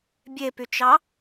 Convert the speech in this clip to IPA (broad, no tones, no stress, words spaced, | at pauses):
bʲepyt͡ʃɑ